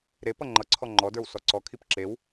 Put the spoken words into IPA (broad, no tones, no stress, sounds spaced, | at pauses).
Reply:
ɾ e p ʌ ŋ͡ǃ ʌ ǀʰ ɔ ŋ͡ǃ ɔ d ə˞ w s ɔ ǀ ɔ kʰ i p ǁ e w